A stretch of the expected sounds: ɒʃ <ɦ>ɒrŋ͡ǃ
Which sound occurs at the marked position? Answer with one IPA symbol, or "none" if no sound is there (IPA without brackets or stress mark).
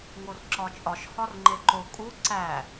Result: h